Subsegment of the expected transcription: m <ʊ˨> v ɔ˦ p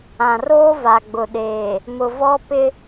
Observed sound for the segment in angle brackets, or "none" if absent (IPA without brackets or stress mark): ʊ˨